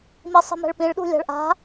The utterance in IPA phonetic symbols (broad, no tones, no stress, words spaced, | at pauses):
misˤi̤mɛ̤ɭpĩɭ ɗṳlʲa̤ɭʔa̤